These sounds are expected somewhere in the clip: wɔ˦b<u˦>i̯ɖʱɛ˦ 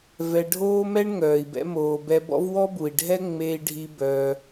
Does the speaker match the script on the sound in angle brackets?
no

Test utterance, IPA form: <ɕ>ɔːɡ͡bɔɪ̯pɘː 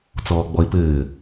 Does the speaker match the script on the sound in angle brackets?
no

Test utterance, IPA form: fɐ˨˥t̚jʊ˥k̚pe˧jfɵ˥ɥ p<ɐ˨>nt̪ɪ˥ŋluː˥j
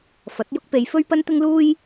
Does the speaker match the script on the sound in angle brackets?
no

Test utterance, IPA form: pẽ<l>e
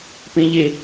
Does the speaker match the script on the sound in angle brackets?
no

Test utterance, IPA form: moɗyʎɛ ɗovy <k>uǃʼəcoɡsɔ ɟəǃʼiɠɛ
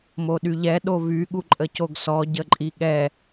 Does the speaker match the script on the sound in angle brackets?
no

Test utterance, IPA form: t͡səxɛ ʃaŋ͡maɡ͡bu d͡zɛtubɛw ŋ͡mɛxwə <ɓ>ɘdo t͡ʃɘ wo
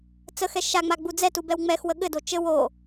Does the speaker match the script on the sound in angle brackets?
no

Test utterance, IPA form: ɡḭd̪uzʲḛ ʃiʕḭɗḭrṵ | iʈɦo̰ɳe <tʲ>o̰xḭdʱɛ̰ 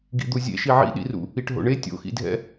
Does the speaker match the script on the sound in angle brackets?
yes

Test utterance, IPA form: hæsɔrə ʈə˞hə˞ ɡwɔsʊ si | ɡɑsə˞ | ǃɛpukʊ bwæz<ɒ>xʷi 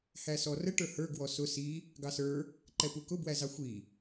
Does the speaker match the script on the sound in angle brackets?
no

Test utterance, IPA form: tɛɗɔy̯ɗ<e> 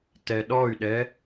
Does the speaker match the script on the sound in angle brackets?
no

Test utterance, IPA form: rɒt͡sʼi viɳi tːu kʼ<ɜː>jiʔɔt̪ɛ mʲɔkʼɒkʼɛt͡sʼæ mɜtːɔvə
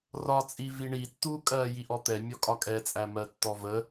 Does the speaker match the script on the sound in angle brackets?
yes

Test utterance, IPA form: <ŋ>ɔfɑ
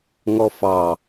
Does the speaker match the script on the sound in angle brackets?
yes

